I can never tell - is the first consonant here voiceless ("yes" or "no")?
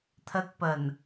yes